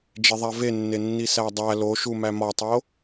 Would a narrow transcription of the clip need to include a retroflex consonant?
no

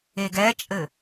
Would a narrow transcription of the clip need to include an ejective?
yes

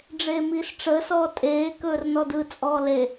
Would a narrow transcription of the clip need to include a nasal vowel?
no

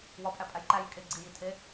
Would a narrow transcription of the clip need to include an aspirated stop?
yes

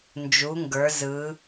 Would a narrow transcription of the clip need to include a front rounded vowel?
no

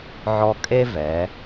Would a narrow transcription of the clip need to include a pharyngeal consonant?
yes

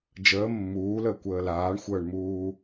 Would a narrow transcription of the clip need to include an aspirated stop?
no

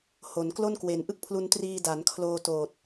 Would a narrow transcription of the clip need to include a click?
no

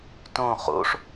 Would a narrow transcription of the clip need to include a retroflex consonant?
yes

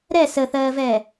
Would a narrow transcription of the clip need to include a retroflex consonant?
no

